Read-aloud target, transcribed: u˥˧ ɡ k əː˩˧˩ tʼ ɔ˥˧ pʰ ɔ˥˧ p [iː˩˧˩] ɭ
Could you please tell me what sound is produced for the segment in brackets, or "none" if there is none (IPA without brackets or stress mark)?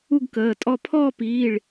iː˩˧˩